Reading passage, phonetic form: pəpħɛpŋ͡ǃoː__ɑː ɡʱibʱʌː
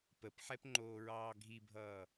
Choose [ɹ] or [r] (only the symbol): ɹ